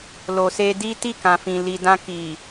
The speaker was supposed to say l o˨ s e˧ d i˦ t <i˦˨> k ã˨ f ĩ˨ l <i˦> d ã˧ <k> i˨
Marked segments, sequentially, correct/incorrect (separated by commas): correct, incorrect, correct